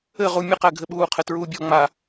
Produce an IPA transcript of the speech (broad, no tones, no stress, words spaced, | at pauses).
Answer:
ɘʁu mʲəqæɡʱɘɓuː qʰɘtɹuːbʲɔ ŋ͡ma